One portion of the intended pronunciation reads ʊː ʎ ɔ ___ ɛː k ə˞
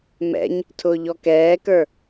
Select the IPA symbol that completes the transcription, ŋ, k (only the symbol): k